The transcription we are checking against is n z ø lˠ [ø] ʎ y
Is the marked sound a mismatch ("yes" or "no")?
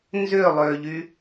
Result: no